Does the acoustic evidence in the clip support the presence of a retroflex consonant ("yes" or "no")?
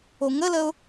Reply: no